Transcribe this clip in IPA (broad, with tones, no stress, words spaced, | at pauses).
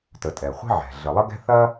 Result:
tə˩ tʼɛ˩χʷi̤˥ ʕɛ̤˩ ɮə˩lˠə˥ɡɛ̤˥ θɐ˥